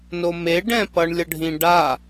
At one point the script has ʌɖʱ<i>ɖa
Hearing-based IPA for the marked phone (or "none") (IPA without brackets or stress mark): ĩ